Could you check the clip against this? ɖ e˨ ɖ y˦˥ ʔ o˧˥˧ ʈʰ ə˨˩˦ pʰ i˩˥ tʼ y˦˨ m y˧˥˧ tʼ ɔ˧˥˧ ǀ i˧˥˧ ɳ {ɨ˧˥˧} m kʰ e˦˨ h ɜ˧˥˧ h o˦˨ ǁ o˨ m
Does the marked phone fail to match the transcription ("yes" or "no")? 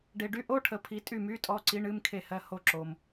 no